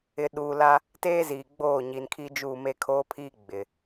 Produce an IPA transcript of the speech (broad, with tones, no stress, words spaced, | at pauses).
ɪ˨ ɗuː˨la˦ | teː˦ziː˨ɡ͡boː˦˨ ɲi˨nkʰi˦d͡ʒu˦˨ me˦kʰoː˦pʰiː˦ ɡ͡bɪ˨